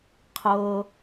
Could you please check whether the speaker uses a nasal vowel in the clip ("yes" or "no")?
no